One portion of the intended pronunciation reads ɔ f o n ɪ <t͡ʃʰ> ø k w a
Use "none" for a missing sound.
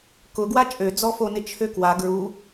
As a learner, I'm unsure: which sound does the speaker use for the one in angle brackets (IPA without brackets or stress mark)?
t͡ʃʰ